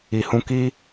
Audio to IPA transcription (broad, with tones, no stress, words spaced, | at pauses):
i˧hũ˦ ki˦